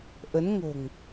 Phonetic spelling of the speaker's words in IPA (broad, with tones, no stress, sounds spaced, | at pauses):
ʔ ə˨˦ n ŋ o̤˨˩ ŋ